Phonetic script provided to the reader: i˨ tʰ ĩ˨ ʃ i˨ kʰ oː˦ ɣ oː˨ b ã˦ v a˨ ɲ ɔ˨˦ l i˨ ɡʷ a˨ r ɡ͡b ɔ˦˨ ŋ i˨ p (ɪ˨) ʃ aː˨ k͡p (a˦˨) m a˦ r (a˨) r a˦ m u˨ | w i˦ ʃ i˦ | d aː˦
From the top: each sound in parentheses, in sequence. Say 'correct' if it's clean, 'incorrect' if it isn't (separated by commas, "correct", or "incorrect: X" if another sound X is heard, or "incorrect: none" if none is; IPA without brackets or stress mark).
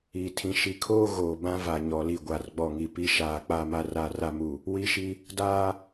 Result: incorrect: i˨, correct, incorrect: a˦